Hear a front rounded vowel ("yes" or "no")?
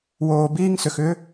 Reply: yes